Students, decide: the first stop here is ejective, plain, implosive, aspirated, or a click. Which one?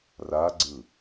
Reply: click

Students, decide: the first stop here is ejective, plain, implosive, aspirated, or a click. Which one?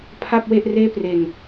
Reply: aspirated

